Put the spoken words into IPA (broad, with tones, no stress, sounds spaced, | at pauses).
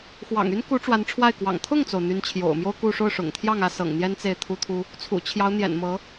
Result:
x w ɑ̰˨˩ ŋ y˥ n k u˧˥ ʈ͡ʂ w a˧˥ n ʈ͡ʂʰ w a˥˩ ɪ̯ k w ɑ̰˨˩ ŋ t̪ʰ ʊ˥˩ ŋ t͡s o˩ ʊ̯ n̪ y˧˥ n t͡ɕʰ j o̰˨˩ ʊ̯ m j o˥ ʊ̯ k u˥˧ ʂ o˥˩ ʊ̯ ʂ ʊ̰˨˩ ŋ t̪ʰ j ɑ˥˩ ŋ ä˥ s ɤ̰˨˩ ŋ n̪ j ɛ˥ n t͡s e˥˩ ɪ̯ t̪ʰ u˥ t̪ʰ u˥ | t͡sʰ ṵ˨˩ t͡ɕʰ j ɑ˧˥ ʊ̯ n̪ j ɛ̰˨˩ n m ɤ˧˥